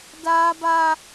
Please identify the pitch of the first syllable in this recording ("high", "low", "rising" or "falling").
high